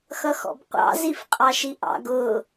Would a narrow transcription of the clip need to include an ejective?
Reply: yes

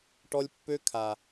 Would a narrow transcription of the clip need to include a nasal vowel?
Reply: no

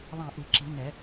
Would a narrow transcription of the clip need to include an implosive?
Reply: no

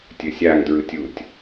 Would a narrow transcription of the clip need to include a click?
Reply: no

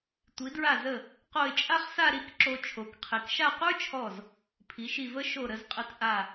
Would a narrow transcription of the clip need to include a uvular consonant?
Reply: yes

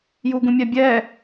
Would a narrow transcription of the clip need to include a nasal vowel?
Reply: yes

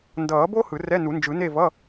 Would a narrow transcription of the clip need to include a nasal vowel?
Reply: no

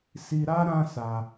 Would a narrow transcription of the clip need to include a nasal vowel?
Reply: yes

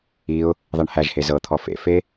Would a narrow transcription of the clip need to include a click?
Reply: no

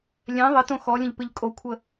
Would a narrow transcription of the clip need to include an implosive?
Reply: no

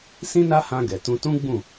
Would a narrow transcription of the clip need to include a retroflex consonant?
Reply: no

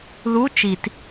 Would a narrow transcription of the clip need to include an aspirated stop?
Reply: no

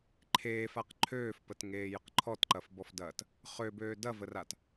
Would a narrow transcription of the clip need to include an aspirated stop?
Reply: yes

